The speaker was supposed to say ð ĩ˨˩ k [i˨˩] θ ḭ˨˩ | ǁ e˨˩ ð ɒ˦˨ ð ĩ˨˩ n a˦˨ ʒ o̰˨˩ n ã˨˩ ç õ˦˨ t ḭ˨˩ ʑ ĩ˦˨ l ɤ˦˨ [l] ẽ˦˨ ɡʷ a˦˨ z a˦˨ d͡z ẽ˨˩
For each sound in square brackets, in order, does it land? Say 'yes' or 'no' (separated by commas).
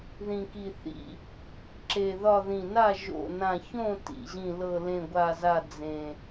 yes, yes